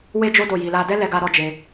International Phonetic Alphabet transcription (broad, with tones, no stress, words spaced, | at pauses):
we˦d͡ʒo˦ do˦˨ji˧la˦ dɛ˦lɛ˧ɡa˧ ɾɔ˦d͡ʒe˧